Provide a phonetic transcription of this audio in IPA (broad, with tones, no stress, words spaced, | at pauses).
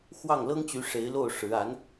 xwɑ˥˩ŋlɤ˥ŋt͡ɕy˧˥ ʂe˧˥ɪ̯lo˥˩ʊ̯ ʂɻ̩˧˥ a˧˥n